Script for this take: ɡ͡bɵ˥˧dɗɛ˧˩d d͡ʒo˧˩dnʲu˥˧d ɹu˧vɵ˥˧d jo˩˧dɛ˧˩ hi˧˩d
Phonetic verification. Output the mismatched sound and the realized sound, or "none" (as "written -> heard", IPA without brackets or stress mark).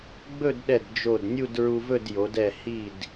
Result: none